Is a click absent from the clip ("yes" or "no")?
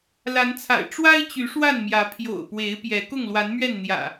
yes